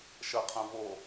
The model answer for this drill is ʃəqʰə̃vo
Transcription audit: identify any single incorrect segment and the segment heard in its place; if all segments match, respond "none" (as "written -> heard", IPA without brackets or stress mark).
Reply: none